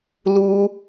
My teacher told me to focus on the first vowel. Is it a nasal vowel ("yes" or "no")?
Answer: no